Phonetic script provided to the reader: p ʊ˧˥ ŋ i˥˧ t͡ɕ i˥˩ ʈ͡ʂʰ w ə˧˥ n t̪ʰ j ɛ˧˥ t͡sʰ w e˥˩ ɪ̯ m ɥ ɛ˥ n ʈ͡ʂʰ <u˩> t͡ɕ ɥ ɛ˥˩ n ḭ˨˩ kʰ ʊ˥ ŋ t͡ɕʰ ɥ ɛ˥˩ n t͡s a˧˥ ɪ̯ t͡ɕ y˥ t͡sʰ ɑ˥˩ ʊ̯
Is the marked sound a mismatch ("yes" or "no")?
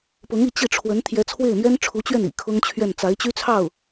yes